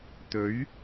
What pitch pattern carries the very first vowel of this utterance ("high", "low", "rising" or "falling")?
rising